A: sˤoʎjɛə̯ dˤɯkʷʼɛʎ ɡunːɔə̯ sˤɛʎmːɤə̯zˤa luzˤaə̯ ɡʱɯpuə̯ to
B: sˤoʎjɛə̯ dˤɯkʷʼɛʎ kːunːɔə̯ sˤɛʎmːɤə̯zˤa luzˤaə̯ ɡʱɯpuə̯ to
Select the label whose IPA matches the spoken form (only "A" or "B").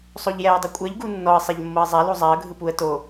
A